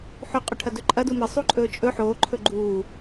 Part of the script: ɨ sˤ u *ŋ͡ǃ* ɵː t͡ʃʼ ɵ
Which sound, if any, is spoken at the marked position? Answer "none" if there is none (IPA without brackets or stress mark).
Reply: ǃʼ